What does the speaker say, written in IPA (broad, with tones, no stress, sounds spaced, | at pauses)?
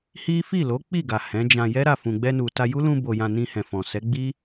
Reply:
h i˦ f i˦˨ l o˨˦ k͡p i˦˨ ɡ a˨ h ɛ̃˨˦ d͡ʒ ã˧ j ɛ˦ ɾ a˦˨ f ũ˨ ɡ͡b ɛ˧ n u˨ t a˧ j u˦ l ũ˧ b o˨ j ã˨ n ĩ˧ h ɛ̃˨ f ɔ̃˨ s ɛ˨˦ ɡ͡b i˦